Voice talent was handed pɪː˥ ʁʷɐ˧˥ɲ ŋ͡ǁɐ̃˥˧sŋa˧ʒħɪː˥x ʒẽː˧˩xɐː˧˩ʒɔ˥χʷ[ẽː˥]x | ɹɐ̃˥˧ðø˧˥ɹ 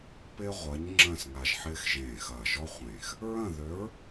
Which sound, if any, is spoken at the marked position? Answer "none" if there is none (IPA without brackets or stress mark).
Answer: ẽː˧˩